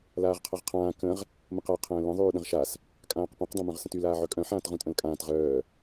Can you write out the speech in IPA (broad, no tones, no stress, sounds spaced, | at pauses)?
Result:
l aː ʁ qʰ a ʁ qʰ ãː k ə̃ ʁ | m ə̃ q a qʰ ə̃ː l ə̃ ðˤ yː ɗ ə̃ ʁ ʃ a s | kʼ ãː q p õ q dˤ õ m œ̃ ʁ s ə̃ t y l aː ʕ œ kʼ œ̃ ħ ãː t ʁ ũ tʼ ə̃ l kʼ ãː t ʁ œː